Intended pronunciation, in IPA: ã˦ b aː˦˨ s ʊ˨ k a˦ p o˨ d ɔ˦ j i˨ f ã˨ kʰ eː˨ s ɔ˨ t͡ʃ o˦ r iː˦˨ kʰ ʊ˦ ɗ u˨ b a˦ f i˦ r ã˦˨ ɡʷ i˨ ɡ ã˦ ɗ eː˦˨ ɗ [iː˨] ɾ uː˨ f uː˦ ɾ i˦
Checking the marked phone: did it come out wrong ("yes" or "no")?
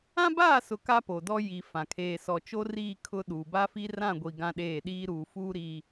yes